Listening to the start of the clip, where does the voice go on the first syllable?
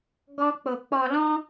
high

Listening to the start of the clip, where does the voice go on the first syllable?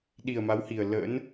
low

